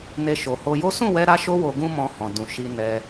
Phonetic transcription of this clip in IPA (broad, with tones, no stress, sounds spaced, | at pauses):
n e˦ ʃ o˧ h o˧ j o˦ s ũ˦˨ w ɛ˧ ɾ a˦ ʃ o˦ w o˧ ɡ ũ˦ m ɔ̃˧ h ɔ̃˨ d ũ˨ ʃ i˧ n ɛ˧